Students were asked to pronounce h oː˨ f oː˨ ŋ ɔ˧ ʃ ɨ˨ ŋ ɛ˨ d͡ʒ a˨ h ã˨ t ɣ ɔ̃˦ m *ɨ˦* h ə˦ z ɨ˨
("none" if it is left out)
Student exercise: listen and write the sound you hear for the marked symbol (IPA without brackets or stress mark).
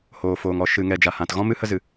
ɨ˦